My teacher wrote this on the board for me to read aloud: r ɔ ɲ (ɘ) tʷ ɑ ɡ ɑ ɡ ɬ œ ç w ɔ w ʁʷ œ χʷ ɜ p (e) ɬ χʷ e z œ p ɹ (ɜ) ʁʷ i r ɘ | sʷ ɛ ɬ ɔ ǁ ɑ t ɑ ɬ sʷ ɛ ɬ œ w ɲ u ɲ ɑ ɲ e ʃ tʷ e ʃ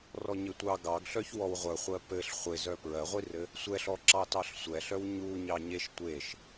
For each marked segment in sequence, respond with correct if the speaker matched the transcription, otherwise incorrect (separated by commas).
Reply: correct, incorrect, correct